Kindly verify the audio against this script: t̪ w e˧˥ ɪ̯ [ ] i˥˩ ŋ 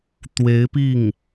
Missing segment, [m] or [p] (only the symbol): p